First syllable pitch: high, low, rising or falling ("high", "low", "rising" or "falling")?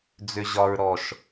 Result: low